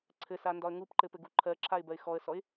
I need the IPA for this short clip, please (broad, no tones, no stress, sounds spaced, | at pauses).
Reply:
ǀʰ ɘ s a n d ɒ ə̯ ŋ u p ǃ ɘ p ɘ ɡ u ǃʰ ɜ ǁʰ a ɪ̯ b ɜ ɪ̯ x ɔ ə̯ s ɔ ɪ̯